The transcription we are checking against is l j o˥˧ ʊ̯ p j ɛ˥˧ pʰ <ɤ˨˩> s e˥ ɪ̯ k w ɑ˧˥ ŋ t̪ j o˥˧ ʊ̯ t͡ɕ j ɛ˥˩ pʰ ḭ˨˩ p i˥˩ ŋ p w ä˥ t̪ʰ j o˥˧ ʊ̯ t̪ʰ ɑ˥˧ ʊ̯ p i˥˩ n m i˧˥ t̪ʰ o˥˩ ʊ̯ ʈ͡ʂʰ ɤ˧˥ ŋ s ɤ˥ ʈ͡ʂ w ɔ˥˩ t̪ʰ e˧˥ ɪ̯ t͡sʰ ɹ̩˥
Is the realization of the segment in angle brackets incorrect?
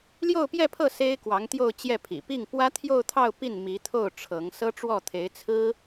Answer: yes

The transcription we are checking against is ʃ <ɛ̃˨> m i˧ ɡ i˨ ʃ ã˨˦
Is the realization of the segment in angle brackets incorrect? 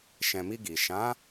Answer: no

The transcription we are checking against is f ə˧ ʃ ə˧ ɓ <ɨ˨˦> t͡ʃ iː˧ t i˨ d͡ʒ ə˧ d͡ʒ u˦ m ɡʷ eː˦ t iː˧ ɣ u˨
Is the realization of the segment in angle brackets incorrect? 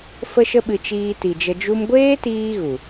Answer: yes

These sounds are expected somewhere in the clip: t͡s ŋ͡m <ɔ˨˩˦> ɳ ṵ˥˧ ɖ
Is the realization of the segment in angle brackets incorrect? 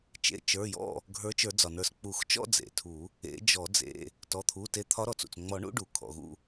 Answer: no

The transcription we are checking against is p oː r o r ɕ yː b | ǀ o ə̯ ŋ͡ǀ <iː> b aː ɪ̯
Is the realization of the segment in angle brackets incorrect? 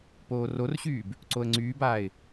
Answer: yes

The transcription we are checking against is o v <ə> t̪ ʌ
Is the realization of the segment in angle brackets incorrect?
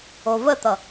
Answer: no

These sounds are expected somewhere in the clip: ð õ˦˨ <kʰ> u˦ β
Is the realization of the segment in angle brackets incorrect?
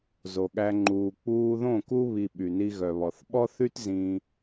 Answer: yes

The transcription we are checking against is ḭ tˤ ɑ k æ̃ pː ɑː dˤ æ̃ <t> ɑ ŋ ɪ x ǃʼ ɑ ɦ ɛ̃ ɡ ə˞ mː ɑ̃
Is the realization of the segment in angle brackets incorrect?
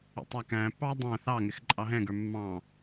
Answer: yes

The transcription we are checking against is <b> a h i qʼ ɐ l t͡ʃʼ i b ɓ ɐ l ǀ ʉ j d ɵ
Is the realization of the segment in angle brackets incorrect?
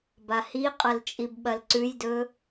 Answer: no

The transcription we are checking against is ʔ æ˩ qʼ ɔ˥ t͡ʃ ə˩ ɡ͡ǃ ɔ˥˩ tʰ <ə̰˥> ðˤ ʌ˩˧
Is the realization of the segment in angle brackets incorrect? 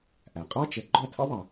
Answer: no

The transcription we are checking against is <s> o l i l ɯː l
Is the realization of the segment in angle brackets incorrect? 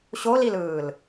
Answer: yes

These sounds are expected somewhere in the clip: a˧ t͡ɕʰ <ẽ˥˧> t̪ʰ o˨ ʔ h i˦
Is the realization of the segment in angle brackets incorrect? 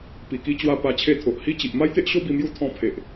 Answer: yes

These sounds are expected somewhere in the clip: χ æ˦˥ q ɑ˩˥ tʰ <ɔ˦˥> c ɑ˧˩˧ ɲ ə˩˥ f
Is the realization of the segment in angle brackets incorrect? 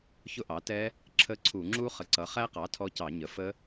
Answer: no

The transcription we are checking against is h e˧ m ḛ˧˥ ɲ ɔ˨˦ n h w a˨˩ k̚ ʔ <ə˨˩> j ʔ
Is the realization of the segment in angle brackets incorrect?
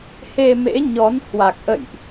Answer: yes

